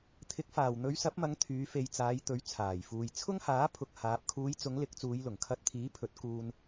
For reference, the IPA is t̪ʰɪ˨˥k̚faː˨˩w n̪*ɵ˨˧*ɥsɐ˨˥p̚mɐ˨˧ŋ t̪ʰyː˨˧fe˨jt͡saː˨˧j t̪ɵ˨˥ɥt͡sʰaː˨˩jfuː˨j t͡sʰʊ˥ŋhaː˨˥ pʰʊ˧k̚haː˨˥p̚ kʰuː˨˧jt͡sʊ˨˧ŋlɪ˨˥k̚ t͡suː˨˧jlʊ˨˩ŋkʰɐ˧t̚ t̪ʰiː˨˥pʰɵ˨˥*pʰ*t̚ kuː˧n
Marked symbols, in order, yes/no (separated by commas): yes, no